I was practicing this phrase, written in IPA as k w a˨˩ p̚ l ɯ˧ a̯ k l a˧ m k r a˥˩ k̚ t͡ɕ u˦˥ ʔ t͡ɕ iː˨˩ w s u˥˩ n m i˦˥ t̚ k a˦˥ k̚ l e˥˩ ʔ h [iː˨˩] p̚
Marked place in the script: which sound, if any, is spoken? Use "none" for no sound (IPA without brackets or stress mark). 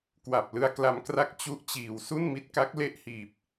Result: iː˨˩